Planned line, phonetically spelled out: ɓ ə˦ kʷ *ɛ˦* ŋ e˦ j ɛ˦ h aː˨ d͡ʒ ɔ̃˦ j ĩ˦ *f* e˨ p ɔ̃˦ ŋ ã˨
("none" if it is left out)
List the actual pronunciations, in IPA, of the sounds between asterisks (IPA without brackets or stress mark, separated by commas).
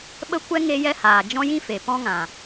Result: ɛ˦, f